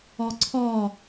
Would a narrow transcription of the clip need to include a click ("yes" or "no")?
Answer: yes